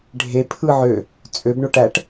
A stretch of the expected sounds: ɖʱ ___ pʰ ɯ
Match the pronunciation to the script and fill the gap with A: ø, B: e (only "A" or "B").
B